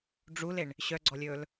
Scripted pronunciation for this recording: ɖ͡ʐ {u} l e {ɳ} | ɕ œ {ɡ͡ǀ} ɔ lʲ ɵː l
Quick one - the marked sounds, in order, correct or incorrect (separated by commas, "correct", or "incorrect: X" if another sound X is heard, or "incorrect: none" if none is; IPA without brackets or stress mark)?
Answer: correct, correct, correct